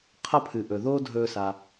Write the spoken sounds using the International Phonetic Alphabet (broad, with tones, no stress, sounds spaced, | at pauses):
qʰ ʌ˥ pʰ ɨ˩ ʔ ɵ˩ ð oː˥ dʱ ɵː˧ s a˩